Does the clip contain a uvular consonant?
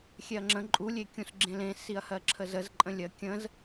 no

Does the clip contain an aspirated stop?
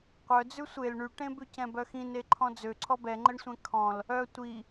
yes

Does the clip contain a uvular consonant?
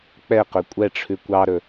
yes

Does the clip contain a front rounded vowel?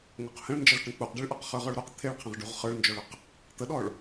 no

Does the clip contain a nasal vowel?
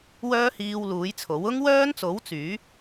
no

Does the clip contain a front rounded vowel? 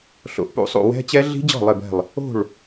no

